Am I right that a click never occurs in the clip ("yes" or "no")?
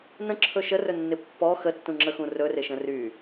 no